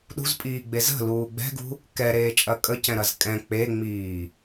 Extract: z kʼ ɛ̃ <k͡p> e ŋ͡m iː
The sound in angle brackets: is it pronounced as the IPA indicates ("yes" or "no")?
yes